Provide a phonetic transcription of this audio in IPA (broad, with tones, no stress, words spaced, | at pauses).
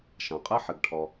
ʃɐ̃˩qʼɘ˥ ħɘ˩ɡʈʰɔ˩